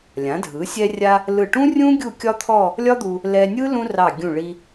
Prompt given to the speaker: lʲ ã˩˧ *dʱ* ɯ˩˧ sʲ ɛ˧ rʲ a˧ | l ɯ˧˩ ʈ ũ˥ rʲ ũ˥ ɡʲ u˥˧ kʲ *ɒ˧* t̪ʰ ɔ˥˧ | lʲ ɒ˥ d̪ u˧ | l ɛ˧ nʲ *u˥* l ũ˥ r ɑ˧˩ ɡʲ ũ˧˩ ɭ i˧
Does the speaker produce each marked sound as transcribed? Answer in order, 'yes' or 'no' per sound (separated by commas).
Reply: yes, no, no